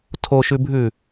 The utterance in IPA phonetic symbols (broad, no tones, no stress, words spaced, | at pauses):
tʰoʃʉbʱʉ